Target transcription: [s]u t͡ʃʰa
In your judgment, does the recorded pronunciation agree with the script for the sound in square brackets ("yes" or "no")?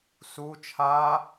yes